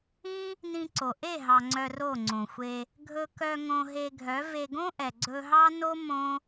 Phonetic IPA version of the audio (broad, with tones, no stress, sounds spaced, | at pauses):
ĩ˦ | n ĩ˧ ǀ o˨ ʔ e˦˨ ɦ ɑ˨ ŋ͡ǀ œ˧ r o˦˨ ŋ͡ǀ õ˨ xʷ e˧ | ɡʱ ɵ˧ k œ˧ ŋ õ˧ ɦ e˧ ɡʱ œ˨˦ v e˧ ɡ õ˦ ʔ ɛ˨ ɡ͡ǀ ɵ˧ ɦ ɑ˦ n o˦ m õ˦